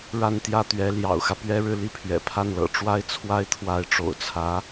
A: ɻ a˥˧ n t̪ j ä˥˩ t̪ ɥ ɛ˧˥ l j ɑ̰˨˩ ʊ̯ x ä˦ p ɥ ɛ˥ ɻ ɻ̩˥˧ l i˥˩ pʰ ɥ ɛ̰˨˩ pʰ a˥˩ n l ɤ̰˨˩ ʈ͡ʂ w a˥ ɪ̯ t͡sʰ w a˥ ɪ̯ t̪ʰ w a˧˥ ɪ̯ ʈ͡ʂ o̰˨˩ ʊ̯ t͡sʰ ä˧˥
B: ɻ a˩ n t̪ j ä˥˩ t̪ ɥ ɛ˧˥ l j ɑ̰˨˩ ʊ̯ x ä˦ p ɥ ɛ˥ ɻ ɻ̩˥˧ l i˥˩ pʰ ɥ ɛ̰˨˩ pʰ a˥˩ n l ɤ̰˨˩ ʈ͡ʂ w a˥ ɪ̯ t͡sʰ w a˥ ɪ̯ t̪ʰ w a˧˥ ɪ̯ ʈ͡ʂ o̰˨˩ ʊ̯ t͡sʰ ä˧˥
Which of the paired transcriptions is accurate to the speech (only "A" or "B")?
A